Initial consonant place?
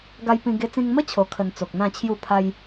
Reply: velar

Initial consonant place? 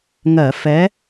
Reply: velar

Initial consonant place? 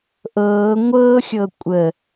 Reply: glottal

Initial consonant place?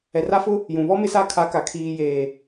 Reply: alveolar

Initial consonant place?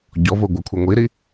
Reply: palatal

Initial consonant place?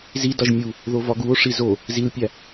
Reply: alveolar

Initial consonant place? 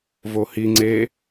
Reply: labial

